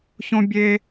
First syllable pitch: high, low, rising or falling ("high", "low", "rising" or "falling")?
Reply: high